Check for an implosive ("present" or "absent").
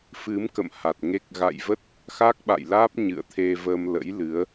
present